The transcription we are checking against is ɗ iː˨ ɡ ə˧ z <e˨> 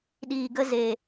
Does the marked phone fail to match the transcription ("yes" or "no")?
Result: no